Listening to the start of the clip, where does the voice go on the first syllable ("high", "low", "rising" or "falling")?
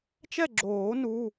falling